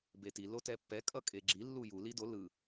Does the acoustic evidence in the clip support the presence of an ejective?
yes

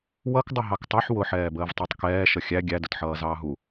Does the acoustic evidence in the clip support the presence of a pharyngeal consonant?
yes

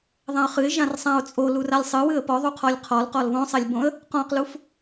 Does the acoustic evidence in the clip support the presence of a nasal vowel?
yes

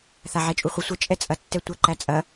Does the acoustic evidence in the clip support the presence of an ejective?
yes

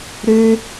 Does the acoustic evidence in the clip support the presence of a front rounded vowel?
yes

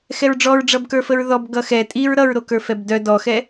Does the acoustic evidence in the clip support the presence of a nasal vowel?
no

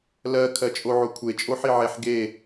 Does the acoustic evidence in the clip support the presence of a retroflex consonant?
no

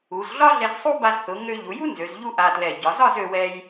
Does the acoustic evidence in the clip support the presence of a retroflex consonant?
no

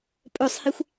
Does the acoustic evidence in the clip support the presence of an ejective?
yes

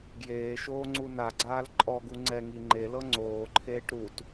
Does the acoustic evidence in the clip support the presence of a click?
yes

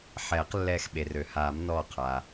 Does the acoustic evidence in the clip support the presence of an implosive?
yes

